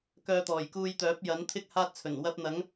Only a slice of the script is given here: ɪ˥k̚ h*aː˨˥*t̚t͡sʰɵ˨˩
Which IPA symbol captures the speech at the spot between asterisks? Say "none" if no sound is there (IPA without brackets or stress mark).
aː˥